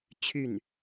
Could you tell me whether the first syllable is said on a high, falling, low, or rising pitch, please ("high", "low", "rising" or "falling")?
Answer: falling